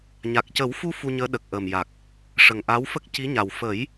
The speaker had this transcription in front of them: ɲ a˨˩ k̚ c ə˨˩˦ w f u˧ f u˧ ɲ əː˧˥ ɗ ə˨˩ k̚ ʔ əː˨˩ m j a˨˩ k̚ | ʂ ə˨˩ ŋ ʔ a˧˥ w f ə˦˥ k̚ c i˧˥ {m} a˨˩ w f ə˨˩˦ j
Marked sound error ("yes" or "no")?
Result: yes